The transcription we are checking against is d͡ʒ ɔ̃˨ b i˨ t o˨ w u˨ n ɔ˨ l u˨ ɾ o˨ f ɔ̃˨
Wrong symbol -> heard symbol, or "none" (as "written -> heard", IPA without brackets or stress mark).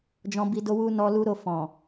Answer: t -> d